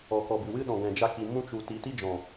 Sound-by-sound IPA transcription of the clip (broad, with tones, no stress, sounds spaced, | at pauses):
ɔ˨ k ɔ˨ b ɨ˨ w ɨ˦ ɗ ɔ̃˨ ɡ ɛ̃˨ d͡ʒ a˧ k i˨ m ũ˧ t͡ʃ u˨ t i˨˦ t i˦ d͡ʒ ɔ̃˨